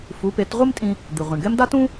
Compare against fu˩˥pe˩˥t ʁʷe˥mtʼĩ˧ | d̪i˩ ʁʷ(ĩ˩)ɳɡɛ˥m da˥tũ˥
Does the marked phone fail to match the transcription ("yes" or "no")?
no